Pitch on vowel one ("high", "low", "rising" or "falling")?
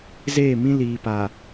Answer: falling